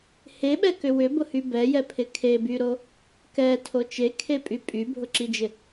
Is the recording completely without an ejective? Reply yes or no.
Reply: no